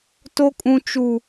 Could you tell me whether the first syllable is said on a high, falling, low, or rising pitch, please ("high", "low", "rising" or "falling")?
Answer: high